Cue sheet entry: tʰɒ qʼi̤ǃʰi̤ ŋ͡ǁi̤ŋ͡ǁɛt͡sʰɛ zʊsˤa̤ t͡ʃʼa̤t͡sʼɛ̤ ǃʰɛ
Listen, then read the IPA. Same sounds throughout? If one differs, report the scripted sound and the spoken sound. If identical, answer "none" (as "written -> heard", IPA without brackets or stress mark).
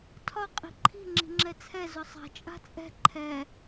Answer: none